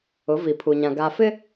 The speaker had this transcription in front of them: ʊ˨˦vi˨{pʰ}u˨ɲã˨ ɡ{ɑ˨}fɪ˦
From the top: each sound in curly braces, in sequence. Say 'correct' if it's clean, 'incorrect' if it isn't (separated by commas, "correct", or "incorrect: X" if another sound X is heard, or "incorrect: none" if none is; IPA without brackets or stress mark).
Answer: correct, incorrect: a˨